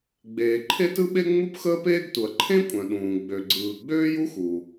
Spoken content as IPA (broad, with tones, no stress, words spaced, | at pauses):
ɡ͡beː˩ǃʰe˥tɯ˥ɓe˥ ŋ͡mu˥pxəː˥peː˥ɡtu˩ɐ̯ ǃʰẽ˥kʷʼœ̃˩ɗũː˩ ɡ͡bø˩ɡ͡ǀɯː˩ ɡ͡bøː˥ju˥xu˩